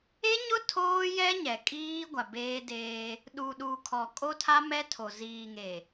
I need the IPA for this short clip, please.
e˦ ɲ ʊ˦ tʰ oː˦ j ɛ˦ ɲ ɛ˨ kʼ iː˦ ɡʷ a˨ b eː˦ d eː˦ | ɗ u˨ ɗ u˨ kʰ ɔ˨ kʼ o˦ tʰ a˦ m ɛ˦ tʰ o˨ z iː˨ ŋ e˨

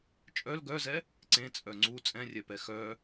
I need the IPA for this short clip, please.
t͡ʃʼ œ l ɡ œ z ɛ | ǀ ẽ t͡sʼ œ ŋ͡ǀ u t͡sʼ ɛ̃ rʲ ɛ p ɛ x œ

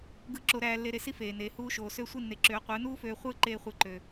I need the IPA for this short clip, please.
ɡ ɯ˥˩ ǁ o˧ ɾ æː˧ lː e˧ ɾ e˧ s i˥ f eː˩ n eː˩ h uː˧ ʃ oː˩ s ø˥˩ sʷ i˥˩ nː e˩˥ ǁ øː˩˥ qʷ ɯː˩˥ n uː˥ f øː˧ χʷ ɯː˥ ǃ eː˧ χʷ ɯ˩˥ ǃ ø˩

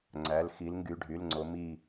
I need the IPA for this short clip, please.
ŋ͡ǀ æ˩˧˩ l x i˨˦ l ŋ ɡ y˩˧˩ ɖʱ y˩˧˩ l ŋ͡ǀ o˨˦ m i˦˨

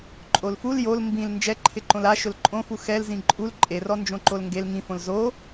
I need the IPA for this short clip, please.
ǃʼ o l f u l j o l m b ĩ l n d͡ʒ ɛ ǃʰ ɪ ǃ õ l a ʃ ʊ l ǃʼ õ f u x ɛ l z ĩ ǃʼ u l ǃʼ e r ɔ n d͡ʒ õ ǃ o l ŋ ɡ e l ŋ ĩ f õ l z o

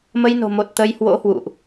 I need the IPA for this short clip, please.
m ə˧ j n o̤˨˩ m o˨˩ t̚ t̪ ə˨˦ j h w o̰˧˥ h w ṵ˧˨ ʔ

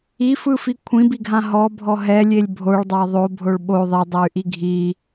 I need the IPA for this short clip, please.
i f ɯ f i kʷʰ ĩ b i ɡʱ ã ɦ ɔ bʱ ɔ ɦ ɛ lʲ e lʲ bʱ o ɭ dˤ a ðˤ o bʱ o ɭ ɓ o ðˤ e dˤ ɤ y̯ ʔ i ɡʱ i

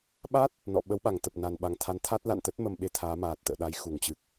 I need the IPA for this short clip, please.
ɓ a˦˥ t̚ | n ɔ̰˧˨ ɓ ə˨˦ w ɓ a˧˩ ŋ t̪ ə˨˩ p̚ n a˨˩ n ɓ a˨˩ ŋ t̪ʰ a˨˦ n t̪ʰ a˦˥ t̚ l a̰˧˨ n t̪ ə˦˥ t̚ m ə˧ m ɓ e˧ t̪ʰ aː˨˦ m aː˨˩ t̚ t̪ ə̰ː˧˨ ɗ a˨˦ j x u˧˩ ŋ t͡ɕ ɨ˨˩ k̚

